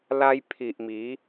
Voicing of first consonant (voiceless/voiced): voiced